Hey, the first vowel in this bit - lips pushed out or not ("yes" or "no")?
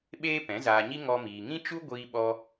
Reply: no